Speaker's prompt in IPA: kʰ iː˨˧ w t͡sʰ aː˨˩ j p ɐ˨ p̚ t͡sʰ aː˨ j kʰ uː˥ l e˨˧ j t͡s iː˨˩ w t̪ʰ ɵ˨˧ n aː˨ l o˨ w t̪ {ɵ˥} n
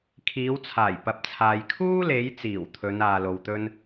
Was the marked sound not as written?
no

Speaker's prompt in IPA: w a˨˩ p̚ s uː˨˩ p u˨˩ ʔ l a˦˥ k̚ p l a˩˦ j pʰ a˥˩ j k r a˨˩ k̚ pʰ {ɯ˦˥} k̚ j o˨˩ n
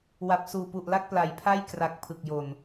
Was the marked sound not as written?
yes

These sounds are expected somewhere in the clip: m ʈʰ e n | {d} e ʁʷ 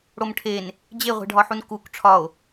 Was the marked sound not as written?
yes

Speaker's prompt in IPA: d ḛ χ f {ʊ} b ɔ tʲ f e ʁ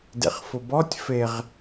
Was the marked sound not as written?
no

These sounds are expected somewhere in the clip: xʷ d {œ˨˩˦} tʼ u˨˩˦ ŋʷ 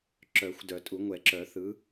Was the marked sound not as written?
no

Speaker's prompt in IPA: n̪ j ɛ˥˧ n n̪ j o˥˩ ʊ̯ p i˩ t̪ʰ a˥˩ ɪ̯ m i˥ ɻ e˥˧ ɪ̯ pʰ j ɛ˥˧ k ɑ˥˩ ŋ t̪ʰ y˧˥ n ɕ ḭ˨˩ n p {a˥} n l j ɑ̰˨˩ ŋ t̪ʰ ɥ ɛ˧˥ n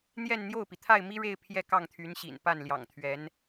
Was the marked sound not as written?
yes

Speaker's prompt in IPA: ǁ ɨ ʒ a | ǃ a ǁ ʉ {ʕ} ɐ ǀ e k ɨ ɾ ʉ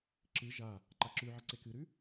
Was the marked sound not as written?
no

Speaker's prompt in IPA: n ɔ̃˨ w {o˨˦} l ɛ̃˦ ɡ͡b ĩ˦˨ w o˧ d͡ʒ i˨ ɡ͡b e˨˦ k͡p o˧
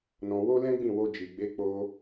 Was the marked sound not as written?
yes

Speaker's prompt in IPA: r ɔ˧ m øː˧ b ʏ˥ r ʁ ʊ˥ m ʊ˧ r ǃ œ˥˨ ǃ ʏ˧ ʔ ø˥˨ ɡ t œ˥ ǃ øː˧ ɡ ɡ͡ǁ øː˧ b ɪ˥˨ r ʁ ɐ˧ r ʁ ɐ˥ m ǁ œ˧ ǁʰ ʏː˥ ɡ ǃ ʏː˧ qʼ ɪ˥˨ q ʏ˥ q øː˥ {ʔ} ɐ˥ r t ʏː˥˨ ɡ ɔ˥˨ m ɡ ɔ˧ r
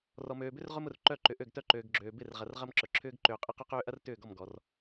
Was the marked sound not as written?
no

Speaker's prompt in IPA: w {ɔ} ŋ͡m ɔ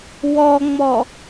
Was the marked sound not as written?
no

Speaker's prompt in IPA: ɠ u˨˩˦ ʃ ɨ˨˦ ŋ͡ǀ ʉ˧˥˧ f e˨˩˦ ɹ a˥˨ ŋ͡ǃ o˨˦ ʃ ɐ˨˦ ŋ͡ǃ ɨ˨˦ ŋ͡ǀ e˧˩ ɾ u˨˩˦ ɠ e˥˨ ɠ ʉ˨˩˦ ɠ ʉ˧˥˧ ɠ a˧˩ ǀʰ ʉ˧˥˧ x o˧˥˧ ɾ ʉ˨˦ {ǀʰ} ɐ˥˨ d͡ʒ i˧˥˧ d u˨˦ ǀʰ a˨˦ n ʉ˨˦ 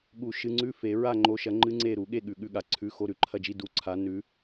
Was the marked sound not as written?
yes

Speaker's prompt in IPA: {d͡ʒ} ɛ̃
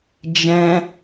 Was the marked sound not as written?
no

